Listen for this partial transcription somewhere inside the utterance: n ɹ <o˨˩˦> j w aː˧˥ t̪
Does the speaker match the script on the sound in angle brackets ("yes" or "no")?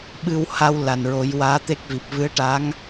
yes